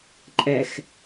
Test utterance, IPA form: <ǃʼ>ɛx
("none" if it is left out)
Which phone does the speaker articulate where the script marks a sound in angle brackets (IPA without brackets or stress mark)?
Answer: ǃʼ